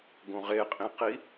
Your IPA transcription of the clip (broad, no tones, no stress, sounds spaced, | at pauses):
ɡ õ ʁ e qʼ ĩ q i